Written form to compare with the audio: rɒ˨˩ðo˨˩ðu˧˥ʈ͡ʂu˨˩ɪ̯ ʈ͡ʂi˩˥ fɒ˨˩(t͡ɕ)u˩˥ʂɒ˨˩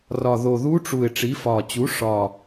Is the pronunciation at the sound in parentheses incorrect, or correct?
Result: correct